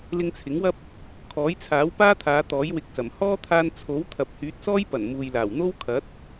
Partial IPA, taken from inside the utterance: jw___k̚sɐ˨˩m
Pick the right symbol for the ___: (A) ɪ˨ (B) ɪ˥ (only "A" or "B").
A